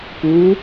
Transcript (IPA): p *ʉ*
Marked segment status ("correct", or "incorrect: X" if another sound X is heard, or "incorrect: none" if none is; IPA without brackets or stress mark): incorrect: u